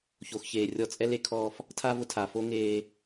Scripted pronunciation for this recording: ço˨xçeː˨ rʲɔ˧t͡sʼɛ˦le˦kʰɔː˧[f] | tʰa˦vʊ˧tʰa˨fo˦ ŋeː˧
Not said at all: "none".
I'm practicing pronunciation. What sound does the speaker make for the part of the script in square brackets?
f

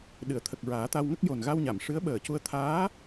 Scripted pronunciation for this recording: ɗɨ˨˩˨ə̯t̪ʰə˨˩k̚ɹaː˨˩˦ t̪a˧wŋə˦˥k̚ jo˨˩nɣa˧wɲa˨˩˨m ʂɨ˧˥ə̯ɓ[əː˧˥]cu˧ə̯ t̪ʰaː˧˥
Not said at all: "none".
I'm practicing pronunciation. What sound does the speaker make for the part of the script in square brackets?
əː˨˩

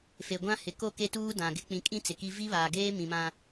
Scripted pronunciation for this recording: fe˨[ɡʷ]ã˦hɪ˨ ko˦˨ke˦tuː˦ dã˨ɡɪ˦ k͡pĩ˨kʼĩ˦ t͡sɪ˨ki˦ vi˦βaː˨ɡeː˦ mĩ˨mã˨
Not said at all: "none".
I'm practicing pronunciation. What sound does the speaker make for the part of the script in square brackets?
ɡʷ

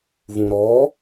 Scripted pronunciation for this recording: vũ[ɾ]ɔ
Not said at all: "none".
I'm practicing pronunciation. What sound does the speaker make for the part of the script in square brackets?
ɾ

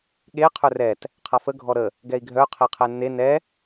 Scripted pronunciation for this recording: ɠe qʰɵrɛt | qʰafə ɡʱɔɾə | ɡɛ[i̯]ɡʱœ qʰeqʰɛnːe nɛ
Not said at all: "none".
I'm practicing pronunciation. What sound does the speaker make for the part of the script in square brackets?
i̯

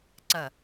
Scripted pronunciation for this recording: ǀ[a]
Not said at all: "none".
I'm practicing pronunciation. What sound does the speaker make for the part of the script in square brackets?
ɐ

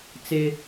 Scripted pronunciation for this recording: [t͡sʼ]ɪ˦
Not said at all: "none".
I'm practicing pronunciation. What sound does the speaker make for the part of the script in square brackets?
t͡s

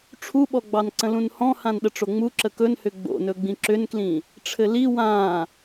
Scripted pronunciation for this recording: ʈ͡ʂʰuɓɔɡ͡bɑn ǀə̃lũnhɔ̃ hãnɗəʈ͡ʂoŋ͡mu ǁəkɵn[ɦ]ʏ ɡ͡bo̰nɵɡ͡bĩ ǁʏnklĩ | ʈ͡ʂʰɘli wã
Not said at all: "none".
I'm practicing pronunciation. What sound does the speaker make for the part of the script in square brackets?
h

